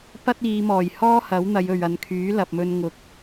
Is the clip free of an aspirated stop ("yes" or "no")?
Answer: no